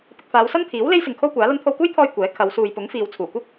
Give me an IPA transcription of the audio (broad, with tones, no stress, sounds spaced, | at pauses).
p ɪ˨ k̚ f aː˨˧ w s ɐ˥ n t̪ʰ iː˨˥ w l e˥ j s ɪ˨ ŋ kʰ o˥ w kʷ aː˨˥ l ɐ˥ n t̪ʰ o˧ w k uː˥ j t̪ʰ ɔː˧ j kʷ ɛː˨˥ kʰ ɐ˨˧ w s uː˨ j p ʊ˨˥ ŋ f iː˨ w t͡sʰ uː˨˩ kʷ ɪ˥ k̚